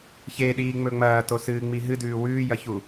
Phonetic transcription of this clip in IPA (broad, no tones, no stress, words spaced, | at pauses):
çeɗiːŋ͡mɵ ŋ͡mɐːtosɨːŋ͡mi ɦɨdʉː wʉːjɐçu